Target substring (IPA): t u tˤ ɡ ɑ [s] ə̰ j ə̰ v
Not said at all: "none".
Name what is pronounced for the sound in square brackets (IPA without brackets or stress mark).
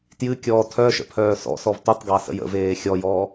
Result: s